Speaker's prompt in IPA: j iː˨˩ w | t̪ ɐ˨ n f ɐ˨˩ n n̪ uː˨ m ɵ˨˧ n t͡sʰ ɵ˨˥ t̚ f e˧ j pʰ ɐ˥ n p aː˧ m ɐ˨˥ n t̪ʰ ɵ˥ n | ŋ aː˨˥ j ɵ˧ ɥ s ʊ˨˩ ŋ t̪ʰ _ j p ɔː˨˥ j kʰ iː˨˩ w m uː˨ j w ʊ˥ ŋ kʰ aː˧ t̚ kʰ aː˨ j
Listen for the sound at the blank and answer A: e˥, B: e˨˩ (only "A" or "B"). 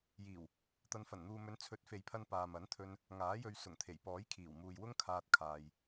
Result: B